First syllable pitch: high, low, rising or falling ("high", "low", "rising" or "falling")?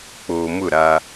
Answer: low